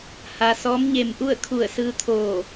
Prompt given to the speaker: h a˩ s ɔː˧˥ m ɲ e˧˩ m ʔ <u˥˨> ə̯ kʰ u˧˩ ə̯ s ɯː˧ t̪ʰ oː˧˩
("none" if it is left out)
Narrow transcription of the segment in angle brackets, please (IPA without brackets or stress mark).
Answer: u˥˨